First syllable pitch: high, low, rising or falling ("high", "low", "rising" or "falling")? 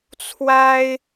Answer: high